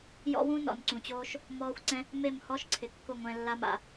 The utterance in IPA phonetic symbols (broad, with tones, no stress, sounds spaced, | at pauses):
j ɔ̰˦ w ũ˦ n ɔ̰˨ n ǀ ũ˨ t͡ɕ oː˦ ʃ | m ɔː˦ xʷ ǀ ɛ̃˦ | m e˦˨ m h ɔ˦ ʃ ǀʰ ɪ˨ kː ʊ˦˨ ŋʷ ɛ̃˧ lː a˦ m a̰˧